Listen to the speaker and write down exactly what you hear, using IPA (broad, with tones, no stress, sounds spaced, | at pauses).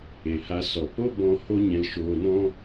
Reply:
e˨ h a˧ s ɔ˨ p o˦ b ɔ̃˦ h o˦ ɲ ɛ̃˧ l ʃ oː˧ n ɔ̃˦